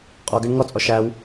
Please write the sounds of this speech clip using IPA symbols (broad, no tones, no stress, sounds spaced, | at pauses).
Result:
qʼ ɔ ɡ ɜ ɳ ŋ ɔ t͡sʼ ɔ ʃ æ w